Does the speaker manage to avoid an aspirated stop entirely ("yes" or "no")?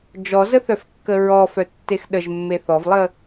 yes